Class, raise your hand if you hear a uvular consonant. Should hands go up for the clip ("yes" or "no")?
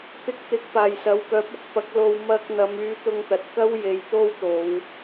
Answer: no